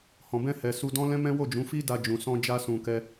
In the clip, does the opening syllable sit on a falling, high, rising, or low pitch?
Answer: low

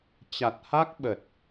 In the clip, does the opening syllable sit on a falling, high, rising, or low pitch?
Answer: low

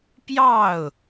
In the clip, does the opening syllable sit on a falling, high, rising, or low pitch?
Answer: falling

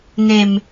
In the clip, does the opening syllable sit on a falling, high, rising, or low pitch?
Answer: low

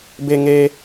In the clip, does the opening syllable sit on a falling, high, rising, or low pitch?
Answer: low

